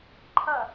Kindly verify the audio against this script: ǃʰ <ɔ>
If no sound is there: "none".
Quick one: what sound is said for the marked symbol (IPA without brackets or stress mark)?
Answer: ʌ